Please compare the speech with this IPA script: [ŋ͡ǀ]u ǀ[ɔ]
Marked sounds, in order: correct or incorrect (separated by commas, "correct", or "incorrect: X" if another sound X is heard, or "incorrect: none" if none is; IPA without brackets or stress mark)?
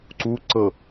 incorrect: ǀ, incorrect: ɤ